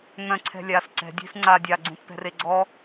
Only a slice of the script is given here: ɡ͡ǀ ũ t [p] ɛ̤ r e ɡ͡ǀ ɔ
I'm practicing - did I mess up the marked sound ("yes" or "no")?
no